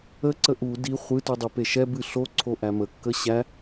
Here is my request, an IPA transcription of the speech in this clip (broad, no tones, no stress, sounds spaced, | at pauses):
ə ǀ ə ʔ u d i χʷ ɨ t u dˤ ɨ p e ʃ ɛ b ɨ ɬ o ǀʰ o ʔ æ m ə kː ə ɕ æ